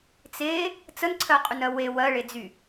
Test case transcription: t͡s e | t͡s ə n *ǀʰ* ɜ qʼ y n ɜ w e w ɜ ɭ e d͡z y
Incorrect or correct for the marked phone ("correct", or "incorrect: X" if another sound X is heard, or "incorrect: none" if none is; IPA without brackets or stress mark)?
correct